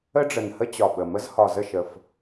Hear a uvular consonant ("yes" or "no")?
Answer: no